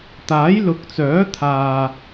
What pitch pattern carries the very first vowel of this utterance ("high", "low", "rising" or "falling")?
rising